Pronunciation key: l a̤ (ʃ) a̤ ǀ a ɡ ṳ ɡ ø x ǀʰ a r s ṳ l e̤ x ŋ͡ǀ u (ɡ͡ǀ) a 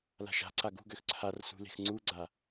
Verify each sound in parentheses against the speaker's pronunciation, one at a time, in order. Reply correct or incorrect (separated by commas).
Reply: correct, correct